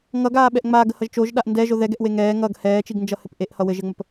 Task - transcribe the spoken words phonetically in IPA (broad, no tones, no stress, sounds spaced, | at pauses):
ŋ ʌ ɡ aː ɓ ɛ ʔ ŋ͡m aː ɡ ə h ʌ ʒ t͡ʃ o ʒ ɗ a ʔ n d ɛ ʒ o ð ɛ ɡ ɛ ʔ w e ŋ ɛː ŋ ʌ ɡ h ɛː t͡ʃ i ɡ n d͡ʒ ʌ h ɘ p ʔ e ʔ h ʌ w ɘ ʒ ɘ ŋ͡m ə p